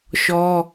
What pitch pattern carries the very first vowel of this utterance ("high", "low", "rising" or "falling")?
high